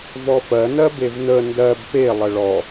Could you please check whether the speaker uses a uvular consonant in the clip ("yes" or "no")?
no